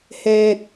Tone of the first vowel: low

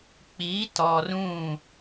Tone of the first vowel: rising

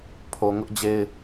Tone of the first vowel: low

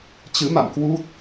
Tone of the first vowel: rising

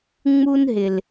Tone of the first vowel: high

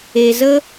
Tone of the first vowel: low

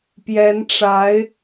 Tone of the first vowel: rising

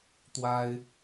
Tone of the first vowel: high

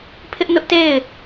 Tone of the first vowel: high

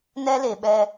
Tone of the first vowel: high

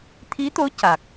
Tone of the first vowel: rising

